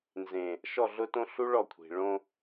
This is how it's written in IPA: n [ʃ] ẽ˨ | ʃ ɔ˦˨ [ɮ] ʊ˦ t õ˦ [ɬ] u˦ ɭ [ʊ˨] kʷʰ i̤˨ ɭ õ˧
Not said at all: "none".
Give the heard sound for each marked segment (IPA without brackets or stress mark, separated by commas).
z, ɮ, ɬ, ɔ˨